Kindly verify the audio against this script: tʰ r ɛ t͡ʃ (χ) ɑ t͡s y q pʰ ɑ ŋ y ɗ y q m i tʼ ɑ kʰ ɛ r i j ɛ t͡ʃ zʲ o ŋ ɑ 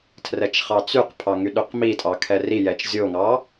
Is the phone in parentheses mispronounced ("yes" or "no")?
no